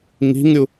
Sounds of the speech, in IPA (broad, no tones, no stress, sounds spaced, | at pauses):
ŋ i̤ ŋ ɾʲ u